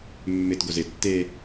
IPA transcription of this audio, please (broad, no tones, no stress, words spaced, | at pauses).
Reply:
mːɪt ɡozɪ tːe